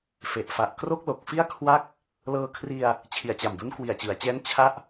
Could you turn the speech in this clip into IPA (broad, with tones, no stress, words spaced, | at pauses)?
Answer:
fe˨˩ʔfa˨˩ʔ kro˥˩k̚lo˨˩k̚fi˥˩a̯ kʰwa˥˩k̚ | lɤː˧kʰri˧a̯ | t͡ɕʰi˨˩a̯t͡ɕa˨˩mdu˦˥n kwi˨˩a̯t͡ɕɯ˩˦a̯t͡ɕɛː˦˥n t͡ɕʰa˥˩ʔ